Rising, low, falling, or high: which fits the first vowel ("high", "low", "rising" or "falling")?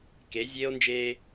rising